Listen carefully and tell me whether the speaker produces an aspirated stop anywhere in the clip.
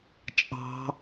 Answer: no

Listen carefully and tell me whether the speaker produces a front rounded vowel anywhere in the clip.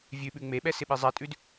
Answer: no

